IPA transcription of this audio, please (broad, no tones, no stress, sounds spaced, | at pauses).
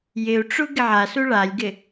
j ɪ u̯ ʈ͡ʂ u ɡ ɪ ʕ a s u ɭ a lʲ ɡ ɪ